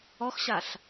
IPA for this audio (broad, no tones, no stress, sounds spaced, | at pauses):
ɔ x ɕ a ɬ